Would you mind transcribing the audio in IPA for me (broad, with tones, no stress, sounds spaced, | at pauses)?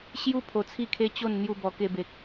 ɕ j u˦ pʰ o˧ t͡sʰ i˥˧ kʰ e˦ t͡ɕ o˥˧ n n̪ j u˥˧ b ɔ˧ k e˧ b e˨ k̚